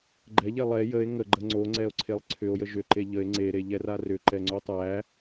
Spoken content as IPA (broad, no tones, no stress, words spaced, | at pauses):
ɡ͡ǃɛʎɛ lˠɛ jəe̯ ŋəɡ͡ǃə ŋ͡ǀoŋ͡ǀɛo̯ǀʰelˠ ǀʰʏo̯jə ʒʏǃe ʎəe̯ ŋ͡ǀeɾeʎɛra rʏǃɛŋ͡ǀo tˤæ